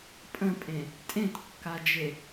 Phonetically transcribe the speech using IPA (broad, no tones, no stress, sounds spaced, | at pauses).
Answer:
pʼ ə̃ pʼ ẽ | tʼ ẽ t kː a d͡ʒ e